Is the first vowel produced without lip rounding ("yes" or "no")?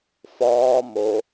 no